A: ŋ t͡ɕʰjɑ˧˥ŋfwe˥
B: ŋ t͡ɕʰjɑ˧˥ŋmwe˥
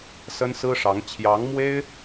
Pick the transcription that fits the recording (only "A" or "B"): B